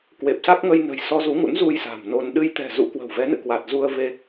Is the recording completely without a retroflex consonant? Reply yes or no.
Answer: yes